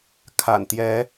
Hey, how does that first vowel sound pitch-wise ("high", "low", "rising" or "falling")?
low